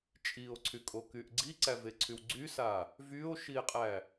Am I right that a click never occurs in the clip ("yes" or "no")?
no